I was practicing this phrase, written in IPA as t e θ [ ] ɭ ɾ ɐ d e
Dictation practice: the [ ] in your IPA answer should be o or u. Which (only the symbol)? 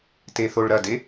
o